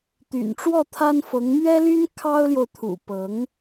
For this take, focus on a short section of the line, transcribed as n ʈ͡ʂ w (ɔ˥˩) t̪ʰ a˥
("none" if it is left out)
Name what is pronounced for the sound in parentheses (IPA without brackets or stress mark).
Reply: ɔ˥˩